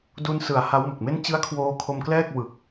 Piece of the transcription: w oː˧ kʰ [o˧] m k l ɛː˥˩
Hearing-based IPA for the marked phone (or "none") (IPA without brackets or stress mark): o˧